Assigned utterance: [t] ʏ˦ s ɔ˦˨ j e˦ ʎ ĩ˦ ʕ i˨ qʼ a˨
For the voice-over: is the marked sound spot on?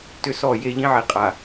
yes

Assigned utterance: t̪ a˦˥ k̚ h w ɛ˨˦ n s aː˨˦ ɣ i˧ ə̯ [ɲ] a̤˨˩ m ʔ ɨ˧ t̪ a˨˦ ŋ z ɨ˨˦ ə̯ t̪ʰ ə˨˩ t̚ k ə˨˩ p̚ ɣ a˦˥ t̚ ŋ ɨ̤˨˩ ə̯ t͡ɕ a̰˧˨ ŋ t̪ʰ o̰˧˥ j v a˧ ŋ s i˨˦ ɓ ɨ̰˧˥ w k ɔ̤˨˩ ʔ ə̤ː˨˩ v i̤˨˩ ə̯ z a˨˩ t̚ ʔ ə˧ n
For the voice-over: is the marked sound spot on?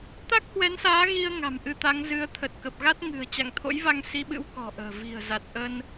no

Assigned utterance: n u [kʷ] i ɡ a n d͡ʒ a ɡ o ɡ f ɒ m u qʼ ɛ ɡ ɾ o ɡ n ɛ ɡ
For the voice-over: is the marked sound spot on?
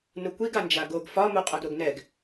yes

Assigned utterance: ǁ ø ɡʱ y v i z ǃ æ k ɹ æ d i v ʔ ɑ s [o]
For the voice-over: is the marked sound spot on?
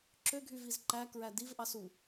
no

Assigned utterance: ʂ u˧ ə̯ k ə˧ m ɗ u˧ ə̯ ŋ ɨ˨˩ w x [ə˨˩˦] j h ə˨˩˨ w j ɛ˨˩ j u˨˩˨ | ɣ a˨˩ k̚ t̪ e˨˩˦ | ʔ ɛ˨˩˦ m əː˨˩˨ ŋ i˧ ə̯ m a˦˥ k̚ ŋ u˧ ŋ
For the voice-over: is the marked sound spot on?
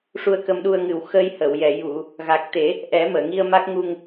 no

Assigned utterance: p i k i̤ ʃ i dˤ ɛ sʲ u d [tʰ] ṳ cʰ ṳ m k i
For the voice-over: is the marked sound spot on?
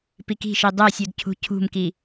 no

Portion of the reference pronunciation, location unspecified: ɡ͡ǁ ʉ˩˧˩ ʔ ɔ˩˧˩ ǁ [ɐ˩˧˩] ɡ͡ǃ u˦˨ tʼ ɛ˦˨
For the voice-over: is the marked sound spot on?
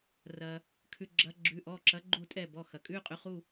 no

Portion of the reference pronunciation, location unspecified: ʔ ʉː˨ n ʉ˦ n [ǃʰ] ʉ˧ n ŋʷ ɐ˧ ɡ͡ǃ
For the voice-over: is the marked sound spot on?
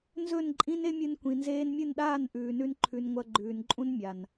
yes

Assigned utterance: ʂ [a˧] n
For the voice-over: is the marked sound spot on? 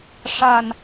yes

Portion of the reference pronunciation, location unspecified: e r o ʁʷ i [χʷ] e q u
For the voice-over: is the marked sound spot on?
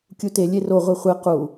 yes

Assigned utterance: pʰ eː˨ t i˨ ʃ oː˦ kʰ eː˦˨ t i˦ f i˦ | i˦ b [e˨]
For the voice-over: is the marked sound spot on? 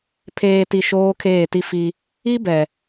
no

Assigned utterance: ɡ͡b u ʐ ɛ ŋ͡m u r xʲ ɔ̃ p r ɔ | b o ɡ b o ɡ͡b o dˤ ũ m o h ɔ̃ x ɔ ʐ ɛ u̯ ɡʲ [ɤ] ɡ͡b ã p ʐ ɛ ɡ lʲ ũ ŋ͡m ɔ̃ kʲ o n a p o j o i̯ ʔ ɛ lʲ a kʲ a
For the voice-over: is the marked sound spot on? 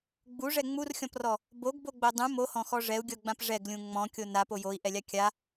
yes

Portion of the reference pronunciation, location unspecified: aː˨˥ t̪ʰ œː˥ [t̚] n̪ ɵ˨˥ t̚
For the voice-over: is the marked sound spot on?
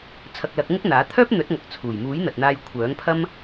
no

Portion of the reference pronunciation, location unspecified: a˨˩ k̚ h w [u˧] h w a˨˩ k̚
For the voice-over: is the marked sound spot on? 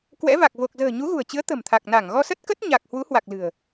no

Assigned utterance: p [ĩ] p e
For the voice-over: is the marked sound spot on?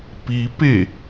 no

